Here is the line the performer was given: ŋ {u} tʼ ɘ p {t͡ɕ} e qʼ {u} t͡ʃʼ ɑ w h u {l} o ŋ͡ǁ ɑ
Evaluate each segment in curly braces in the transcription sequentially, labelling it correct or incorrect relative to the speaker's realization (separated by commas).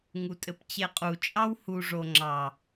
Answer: correct, correct, correct, incorrect